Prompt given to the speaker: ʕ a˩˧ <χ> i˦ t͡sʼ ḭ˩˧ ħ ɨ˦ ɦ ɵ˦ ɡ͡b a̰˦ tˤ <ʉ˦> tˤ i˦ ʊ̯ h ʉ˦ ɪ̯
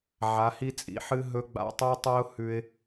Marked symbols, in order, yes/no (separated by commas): no, yes